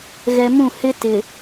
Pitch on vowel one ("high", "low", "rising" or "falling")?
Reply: low